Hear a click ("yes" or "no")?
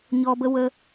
no